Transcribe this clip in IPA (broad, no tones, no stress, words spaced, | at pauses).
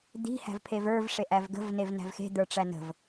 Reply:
d̪i̤ hæ̤vpʰevə˞v ʂeʔævɡə̤v nevnæ̤vxe̤ d̪ə˞ʈ͡ʂænə̤v